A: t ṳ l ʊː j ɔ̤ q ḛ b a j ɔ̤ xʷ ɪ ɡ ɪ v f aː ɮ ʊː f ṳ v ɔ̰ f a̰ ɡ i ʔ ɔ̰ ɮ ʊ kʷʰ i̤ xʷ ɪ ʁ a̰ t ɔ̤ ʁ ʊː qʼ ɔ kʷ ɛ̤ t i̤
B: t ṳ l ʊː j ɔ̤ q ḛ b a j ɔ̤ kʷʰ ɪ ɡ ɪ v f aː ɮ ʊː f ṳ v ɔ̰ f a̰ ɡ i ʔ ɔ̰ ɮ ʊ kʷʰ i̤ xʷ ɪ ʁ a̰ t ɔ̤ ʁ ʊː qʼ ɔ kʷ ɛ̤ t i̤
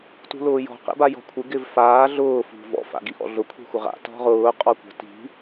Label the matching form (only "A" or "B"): B